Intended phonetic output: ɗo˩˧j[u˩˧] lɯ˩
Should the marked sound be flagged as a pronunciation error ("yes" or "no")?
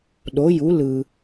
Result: no